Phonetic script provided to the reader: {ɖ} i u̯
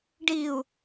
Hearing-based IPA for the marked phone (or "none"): ɖ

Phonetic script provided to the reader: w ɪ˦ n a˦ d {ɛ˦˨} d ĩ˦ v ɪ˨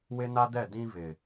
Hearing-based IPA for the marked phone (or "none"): ɛ˦˨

